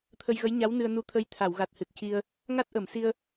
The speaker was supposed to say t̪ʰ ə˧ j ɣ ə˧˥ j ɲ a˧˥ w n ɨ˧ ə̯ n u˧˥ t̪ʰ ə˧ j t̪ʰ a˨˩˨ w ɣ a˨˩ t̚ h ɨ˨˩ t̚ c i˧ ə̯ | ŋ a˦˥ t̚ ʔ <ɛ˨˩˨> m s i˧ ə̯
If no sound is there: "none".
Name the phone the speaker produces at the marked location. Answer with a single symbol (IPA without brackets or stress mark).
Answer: ə˨˩˨